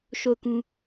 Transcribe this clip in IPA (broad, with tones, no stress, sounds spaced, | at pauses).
ʃ o˦˨ ʊ̯ k ũ˦